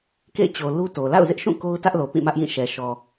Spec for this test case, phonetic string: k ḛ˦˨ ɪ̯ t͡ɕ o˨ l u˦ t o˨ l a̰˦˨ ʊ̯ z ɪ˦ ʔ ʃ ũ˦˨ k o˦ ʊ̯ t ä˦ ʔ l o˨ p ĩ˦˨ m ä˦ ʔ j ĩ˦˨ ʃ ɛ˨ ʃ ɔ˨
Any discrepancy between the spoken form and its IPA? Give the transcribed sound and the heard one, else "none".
none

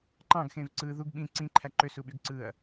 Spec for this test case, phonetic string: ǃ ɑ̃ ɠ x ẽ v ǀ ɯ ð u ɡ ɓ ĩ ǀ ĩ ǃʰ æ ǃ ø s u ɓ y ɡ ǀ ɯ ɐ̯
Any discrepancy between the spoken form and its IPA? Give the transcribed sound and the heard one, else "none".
ɠ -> ɡ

